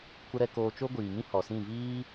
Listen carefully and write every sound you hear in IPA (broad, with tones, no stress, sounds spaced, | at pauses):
kʷ ə˧ ɾ ɛ˧ k oː˧ t͡ʃ o˦ ɡʷ iː˨ ŋ ĩ˦ h ɔ˨ s ĩ˦˨ v iː˦